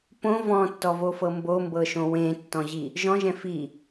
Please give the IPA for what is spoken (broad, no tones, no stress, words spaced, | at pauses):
põ vɔ̃tːɔvofɤ mbombɤʃõ wẽtːɔ̃ʑi | ʒɔ̃ʒɛ̃ fi